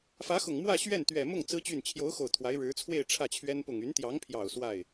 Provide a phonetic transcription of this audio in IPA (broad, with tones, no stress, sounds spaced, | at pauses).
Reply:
f ä˧˥ x ʊ˨˩ ŋ m w ä˥˧ ɕ ɥ ɛ˥˩ n t̪ ɥ ɛ˨˩ m ʊ˥˩ ŋ t͡s ɹ̩˥ t͡ɕ y˥˩ n t͡ɕʰ j o˧˥ ʊ̯ x o˨˩ ʊ̯ t̪ʰ w a˧˥ ɪ̯ ɻ ɻ̩˧˥ t͡sʰ w e˥˧ ɪ̯ ʈ͡ʂʰ ä˥˩ t͡ɕʰ ɥ ɛ˥ n p ʊ˨˩ ŋ y˧˥ n t̪ j ɑ˧˥ ŋ pʰ j ɑ˨˩ ʊ̯ s w a˥˩ ɪ̯